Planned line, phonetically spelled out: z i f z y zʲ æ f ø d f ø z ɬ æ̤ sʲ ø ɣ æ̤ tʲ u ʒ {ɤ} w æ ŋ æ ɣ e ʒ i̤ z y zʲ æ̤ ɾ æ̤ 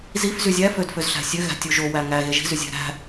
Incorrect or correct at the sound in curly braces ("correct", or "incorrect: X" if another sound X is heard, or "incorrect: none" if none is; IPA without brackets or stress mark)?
incorrect: o